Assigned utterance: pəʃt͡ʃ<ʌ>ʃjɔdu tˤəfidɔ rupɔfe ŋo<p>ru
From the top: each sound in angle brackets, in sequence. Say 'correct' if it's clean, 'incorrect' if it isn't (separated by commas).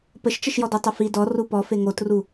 incorrect, incorrect